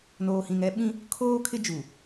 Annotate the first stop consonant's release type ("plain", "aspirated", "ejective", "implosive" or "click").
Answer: implosive